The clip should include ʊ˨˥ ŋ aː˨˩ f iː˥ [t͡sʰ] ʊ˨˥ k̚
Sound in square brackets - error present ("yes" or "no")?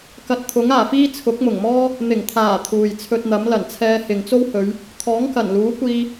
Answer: no